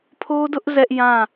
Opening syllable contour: high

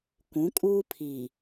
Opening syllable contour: rising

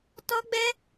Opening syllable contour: high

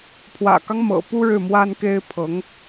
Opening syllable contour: low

